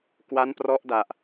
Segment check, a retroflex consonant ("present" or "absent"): absent